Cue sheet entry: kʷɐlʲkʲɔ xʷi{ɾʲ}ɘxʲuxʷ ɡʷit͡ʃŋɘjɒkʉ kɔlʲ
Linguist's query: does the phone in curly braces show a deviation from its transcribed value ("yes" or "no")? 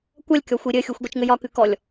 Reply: no